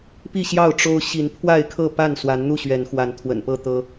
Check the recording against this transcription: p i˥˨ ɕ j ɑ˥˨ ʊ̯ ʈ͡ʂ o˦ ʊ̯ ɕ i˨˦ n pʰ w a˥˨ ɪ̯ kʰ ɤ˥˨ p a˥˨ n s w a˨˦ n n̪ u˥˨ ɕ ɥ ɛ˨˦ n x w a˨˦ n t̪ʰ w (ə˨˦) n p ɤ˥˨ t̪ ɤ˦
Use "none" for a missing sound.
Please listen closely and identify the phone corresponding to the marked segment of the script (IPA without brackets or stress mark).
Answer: ə̰˨˩